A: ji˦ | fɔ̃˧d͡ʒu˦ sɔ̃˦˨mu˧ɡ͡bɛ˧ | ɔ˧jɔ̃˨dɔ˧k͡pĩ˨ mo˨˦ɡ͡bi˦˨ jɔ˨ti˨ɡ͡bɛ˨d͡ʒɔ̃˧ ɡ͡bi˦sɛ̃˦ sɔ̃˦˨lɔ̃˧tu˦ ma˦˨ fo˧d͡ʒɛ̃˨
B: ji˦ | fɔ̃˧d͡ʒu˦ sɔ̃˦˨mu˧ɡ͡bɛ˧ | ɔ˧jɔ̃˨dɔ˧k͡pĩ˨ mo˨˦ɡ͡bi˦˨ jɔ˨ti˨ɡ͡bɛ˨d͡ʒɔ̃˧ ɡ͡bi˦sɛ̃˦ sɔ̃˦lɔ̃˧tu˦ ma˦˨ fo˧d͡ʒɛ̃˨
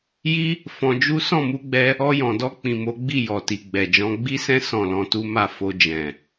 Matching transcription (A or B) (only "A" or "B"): A